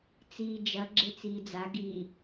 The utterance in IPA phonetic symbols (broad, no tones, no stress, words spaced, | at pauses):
t͡siːd͡ʒɐ ɡ͡ǁet͡siːd͡za ɡi